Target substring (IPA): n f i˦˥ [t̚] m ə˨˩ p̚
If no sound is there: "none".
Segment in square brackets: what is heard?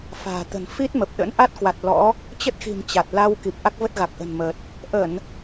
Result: t̚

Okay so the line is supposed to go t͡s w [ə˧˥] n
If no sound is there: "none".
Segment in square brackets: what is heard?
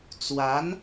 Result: a˧˥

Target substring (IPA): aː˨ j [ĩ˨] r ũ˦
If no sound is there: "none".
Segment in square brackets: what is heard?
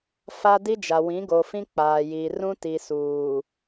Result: i˨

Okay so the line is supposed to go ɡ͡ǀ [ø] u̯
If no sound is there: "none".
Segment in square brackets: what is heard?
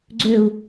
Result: ø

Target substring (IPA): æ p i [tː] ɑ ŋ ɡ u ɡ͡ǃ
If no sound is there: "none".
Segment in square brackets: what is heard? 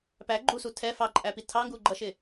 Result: tʰ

